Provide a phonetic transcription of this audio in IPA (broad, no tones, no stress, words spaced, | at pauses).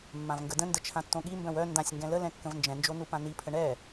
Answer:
mːãvŋɡədə̃ndə t͡ʃʰãtːõɠimbœ̃w œ ndãsʲŋɡɛ̃ ləlɛ̃ kːə̃vnd͡ʒɛ̃nd͡ʒo nupãnipʰə ɳɛ